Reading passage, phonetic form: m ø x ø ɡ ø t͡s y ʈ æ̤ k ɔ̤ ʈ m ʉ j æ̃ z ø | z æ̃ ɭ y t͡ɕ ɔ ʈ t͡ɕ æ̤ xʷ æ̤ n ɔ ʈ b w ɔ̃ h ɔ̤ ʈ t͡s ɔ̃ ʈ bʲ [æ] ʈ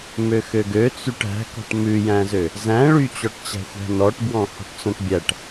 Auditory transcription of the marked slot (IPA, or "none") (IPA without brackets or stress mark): æ